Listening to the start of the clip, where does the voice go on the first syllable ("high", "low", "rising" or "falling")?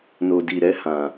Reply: low